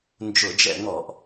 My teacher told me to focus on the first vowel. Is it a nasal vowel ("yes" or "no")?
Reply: no